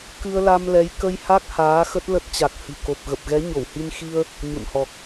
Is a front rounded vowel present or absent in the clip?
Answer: absent